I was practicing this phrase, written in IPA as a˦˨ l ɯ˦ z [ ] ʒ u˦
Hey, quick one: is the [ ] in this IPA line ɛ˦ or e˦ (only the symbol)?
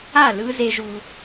e˦